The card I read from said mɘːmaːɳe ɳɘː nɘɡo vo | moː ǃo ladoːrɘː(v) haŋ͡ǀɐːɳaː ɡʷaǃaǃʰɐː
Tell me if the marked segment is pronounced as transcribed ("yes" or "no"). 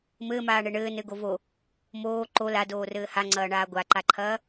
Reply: no